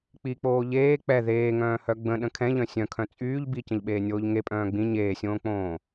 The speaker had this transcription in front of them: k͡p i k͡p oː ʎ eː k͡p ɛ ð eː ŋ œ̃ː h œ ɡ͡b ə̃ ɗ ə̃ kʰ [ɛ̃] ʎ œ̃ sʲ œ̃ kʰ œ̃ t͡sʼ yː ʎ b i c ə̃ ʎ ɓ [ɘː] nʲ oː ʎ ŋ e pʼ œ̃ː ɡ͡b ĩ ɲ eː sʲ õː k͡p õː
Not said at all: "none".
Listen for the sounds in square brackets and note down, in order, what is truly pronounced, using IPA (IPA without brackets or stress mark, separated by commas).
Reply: ɛ̃, eː